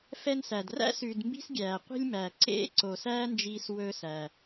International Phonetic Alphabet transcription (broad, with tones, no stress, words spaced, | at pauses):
fɛ˧n sæ˩dræ̰˥ sʉː˩dmbi̤˧s ɡʲæː˩qʷi̤˧lʲmæ˩ ǀḛ˥ ǀo˩sæː˥nd͡ʒiː˧s wɵ˧sæ˩